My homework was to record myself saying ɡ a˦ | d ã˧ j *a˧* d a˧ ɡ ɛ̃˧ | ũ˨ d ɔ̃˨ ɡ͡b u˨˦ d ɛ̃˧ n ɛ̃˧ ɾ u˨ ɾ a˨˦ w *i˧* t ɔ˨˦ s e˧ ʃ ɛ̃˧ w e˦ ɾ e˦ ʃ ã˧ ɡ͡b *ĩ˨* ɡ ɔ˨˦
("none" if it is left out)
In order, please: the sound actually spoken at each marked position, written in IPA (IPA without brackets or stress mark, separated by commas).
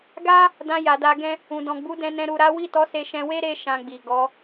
a˨, i˦˨, i˨